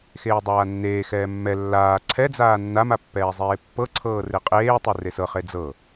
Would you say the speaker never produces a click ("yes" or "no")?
no